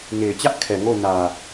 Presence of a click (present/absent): absent